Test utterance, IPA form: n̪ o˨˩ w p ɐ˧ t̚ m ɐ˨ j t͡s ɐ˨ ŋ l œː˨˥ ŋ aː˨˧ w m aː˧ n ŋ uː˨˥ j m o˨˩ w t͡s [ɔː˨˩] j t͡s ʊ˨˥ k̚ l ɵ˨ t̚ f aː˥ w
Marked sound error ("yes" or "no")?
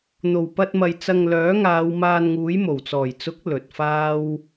no